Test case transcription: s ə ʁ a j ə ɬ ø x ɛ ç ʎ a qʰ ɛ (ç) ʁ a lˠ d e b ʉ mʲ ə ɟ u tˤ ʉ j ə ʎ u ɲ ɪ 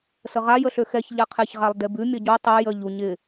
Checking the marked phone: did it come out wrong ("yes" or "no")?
no